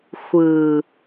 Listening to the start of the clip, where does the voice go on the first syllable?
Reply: low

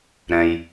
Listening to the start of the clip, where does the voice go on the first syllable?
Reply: low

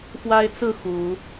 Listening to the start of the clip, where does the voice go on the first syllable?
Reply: high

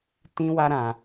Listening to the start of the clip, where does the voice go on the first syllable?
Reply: high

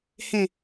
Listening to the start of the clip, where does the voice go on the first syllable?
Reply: low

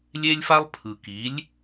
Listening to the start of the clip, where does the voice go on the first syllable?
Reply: high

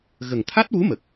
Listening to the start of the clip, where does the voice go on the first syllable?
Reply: low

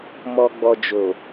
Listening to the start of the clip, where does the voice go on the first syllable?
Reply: low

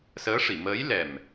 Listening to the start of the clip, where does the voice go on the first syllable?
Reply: rising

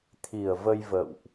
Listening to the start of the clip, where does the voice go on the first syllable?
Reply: low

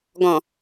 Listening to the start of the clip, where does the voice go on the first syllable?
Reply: low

